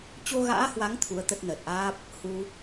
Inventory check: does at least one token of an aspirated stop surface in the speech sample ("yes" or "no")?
yes